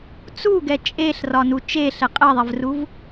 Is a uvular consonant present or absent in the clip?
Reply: present